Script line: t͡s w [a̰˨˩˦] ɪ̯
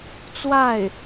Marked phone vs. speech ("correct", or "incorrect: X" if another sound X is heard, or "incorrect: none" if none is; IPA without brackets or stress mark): incorrect: a˥˩